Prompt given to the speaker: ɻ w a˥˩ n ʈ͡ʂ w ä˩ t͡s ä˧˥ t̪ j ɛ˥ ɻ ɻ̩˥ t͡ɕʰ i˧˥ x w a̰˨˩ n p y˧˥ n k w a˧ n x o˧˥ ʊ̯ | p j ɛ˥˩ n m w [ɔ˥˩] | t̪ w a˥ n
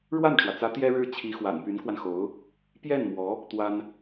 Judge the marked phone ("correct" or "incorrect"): incorrect